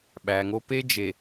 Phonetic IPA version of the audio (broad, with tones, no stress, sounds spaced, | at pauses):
ɓ æ˨ ŋ o˦ p e˦ d͡ʒ e˨